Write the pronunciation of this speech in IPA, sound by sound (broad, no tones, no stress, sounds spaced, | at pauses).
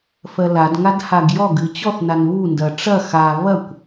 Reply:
f ɜ l a d ŋ a d h a ɡ j ɔ ɡ ɨ t͡ɕ ɔ θ n a n β u n d ɐ ʈ͡ʂ ɐ x a β ɐ kʷ